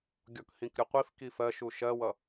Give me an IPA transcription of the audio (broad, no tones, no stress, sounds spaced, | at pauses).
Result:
ɡʲ ɔ k h ĩ k ɾʲ ʊ qʷ i f k i f ɜ ʃ u ʃ ɜ w ʌ